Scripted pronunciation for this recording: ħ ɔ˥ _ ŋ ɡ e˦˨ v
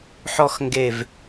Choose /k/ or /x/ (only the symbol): x